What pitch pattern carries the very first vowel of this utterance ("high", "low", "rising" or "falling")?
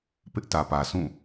high